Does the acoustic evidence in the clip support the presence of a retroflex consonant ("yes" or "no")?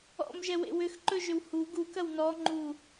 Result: no